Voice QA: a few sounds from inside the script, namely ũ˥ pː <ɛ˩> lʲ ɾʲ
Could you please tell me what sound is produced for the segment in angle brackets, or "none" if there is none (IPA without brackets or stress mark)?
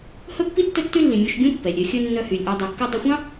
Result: ɛ˩